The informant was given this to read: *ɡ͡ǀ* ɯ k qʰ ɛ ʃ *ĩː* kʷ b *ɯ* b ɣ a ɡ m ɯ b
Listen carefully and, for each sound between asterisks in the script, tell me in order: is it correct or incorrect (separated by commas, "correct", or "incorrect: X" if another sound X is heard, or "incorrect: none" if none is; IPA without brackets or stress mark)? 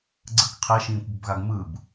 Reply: correct, correct, incorrect: ə